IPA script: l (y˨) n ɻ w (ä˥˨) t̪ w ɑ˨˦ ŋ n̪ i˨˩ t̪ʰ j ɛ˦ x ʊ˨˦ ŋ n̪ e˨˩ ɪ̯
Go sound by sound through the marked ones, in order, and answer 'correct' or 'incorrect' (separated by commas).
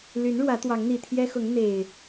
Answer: incorrect, incorrect